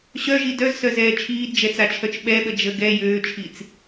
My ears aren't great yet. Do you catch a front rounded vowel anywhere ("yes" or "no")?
yes